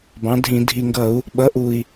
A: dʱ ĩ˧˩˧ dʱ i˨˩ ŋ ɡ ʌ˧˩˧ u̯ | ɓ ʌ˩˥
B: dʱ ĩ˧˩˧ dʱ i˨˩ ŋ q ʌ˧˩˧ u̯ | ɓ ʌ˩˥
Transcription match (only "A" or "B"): A